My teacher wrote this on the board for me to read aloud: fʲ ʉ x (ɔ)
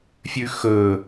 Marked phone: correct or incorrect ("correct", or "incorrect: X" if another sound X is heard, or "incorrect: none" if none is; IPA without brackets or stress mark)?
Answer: incorrect: ɵ